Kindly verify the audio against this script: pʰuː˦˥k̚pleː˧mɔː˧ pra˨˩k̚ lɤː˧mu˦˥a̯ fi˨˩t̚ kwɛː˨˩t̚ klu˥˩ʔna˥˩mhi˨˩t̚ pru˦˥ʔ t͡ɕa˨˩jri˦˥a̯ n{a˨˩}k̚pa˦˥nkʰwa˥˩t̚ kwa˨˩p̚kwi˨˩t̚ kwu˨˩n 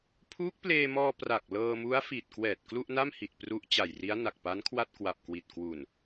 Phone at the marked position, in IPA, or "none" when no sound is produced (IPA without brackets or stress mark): a˨˩